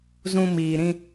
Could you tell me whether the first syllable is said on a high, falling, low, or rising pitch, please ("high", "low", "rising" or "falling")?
low